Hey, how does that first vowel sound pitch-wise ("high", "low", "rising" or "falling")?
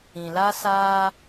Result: low